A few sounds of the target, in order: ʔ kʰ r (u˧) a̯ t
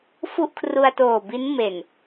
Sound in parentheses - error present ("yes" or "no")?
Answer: no